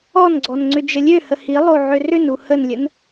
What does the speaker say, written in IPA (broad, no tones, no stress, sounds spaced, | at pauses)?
ɔ n ɡ͡ǀ ɔ n ŋ͡ǀ ʏ d͡ʒ ə lʲ ø h ə h i lˠ o ʕ ø r ʏ n u h ə n lʲ ə n